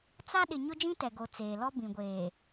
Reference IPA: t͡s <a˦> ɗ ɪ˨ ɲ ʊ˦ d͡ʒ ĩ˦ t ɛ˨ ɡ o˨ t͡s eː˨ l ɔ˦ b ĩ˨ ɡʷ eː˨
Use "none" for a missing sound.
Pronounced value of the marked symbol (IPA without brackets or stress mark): a˦